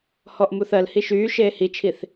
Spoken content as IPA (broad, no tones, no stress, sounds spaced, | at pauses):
h ɔ ʔ m u θ ɜ l h i ʃ yː ʃ eː h i t͡ʃʰ i θ